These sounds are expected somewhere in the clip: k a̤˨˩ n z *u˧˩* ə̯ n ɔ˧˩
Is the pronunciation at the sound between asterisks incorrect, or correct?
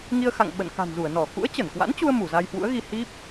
correct